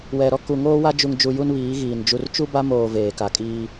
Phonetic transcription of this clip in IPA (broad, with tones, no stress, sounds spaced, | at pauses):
w ɛ˨ ɾ ɔ˦ k u˨ ŋ oː˦ w a˦ d͡ʒ u˨ ŋ d͡ʒ u˨ j u˦ n β iː˨˦ ɣ iː˨ n d͡ʒ u˨ r t͡ʃ u˦ b a˦ m oː˨ v eː˨ k a˨ kʼ iː˦